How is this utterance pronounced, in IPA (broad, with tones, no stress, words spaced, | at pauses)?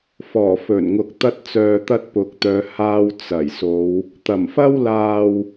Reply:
fɔː˨˩fɵ˨˩nŋʊ˨k̚ t̪ɐ˧t̚t͡sœː˨t̪ɐ˧t̚ pʊ˨k̚t̪œː˨˧ haː˧w t͡sɐ˨˩jso˨˧w | t̪ɐ˨˩mfɐ˥w laː˨w